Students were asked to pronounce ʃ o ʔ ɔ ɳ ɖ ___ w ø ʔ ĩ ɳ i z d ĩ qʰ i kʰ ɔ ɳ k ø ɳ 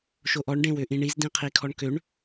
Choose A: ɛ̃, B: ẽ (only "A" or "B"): B